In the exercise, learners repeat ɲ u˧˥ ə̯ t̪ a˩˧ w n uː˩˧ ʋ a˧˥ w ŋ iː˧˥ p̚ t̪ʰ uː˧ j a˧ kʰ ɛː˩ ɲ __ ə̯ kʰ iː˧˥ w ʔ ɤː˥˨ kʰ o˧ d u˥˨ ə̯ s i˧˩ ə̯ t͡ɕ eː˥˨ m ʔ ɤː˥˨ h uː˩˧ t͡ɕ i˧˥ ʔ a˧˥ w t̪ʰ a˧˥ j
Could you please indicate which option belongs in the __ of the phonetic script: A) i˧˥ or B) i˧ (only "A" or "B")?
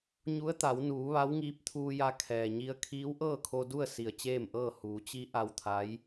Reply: B